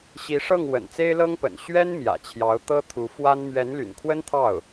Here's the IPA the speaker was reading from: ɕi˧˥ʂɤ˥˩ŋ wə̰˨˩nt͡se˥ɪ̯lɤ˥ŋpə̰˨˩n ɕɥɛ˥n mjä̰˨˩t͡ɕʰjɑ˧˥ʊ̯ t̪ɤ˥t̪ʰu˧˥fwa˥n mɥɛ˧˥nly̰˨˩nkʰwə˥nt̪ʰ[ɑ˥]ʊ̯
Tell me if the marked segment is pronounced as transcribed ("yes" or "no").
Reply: no